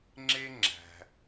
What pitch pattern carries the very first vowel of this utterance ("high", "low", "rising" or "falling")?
high